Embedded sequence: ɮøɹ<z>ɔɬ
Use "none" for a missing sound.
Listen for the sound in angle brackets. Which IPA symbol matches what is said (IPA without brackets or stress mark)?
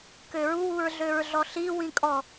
ɮ